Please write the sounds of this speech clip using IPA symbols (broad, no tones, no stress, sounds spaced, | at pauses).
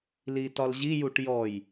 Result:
l i t ɒ l ʑ i j u ʈ j ɔ j